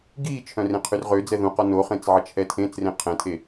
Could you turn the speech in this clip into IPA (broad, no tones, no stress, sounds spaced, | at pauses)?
ɡ iː t͡ʃʰ œ̃ r ẽ qʰ y r ʁ ø d͡z ɛ ð ũ q ɔ n o χ ẽ t͡s ʕ ə t͡ʃʰ ɛ tʰ ẽː t͡s r ẽ qʰ ɛ̃ tʰ e